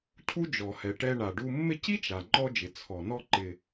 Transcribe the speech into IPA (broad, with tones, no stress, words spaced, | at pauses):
cʰu˥d͡ʒɔ˩hɛ˩ʈɛ˧ ɳa˩ɖu˧mːɪ˥ ci˥t͡ʃa˩ ŋ͡ǃɔ˧d͡ʒɪ˩ t͡sʰɔ˩ nɔ˧ǃɪ˩